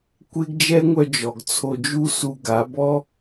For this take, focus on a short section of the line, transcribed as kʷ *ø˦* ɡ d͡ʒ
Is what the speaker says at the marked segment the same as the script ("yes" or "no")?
no